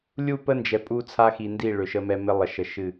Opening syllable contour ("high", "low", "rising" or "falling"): falling